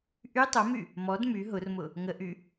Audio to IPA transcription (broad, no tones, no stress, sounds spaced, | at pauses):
ʔ y tˤ o m y | m ɔ d m y ɦ ʊ r m ʊ | ŋ ə ʔ y